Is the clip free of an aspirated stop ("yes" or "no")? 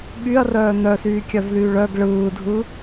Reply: yes